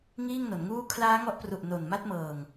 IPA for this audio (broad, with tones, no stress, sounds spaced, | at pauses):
ŋ iː˥˩ ŋ n o˩˦ n ŋ uː˥˩ kʰ l aː˦˥ ŋ ɔ˦˥ ʔ p r u˨˩ ʔ n o˨˩ n m a˦˥ t̚ m ɤː˨˩ ŋ